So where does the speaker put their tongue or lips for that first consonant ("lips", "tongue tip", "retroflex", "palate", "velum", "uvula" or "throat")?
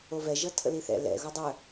lips